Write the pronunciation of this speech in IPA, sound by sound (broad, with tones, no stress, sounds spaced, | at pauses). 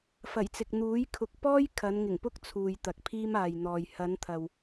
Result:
f ɐ˨˩ j t͡s ɪ˨ k̚ n̪ uː˨˥ j kʰ ʊ˨ k̚ p ɔː˥ j kʰ ɐ˨˧ n ŋ ɪ˨˩ ŋ p ʊ˥ k̚ t͡sʰ uː˨ j t̪ ɐ˨ k̚ pʰ iː˥ m aː˨ j n̪ ɔː˨ j h ɐ˨˧ n t̪ʰ ɐ˨ w